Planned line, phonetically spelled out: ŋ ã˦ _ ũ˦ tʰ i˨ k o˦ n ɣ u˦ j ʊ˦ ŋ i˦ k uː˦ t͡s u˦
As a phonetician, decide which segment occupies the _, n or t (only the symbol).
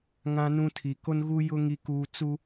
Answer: n